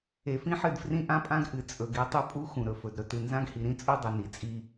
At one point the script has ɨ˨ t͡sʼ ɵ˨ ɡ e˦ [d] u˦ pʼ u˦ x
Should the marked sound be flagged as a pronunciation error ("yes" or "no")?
yes